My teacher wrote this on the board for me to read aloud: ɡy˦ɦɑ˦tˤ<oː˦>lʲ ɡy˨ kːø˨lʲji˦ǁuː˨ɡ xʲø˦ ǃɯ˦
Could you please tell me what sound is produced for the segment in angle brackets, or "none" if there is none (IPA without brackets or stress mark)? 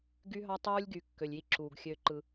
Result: uː˦